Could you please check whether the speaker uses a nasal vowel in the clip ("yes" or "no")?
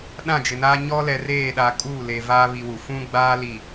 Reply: yes